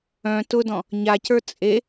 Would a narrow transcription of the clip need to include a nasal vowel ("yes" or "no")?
yes